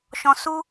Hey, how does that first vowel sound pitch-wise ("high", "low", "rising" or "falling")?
low